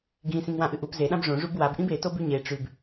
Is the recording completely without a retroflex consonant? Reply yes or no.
no